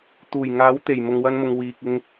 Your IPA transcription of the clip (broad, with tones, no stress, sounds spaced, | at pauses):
t̪ uː˨˩ j ŋ aː˨˥ w t̪ e˨˩ j m ʊ˨ ŋ w ɐ˧ n m ʊ˨ ŋ w iː˨ k̚ ɪ˧ ŋ